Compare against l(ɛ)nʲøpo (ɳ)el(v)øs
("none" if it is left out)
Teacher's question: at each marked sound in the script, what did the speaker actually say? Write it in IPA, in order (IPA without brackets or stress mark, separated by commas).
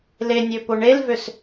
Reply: e, ɳ, v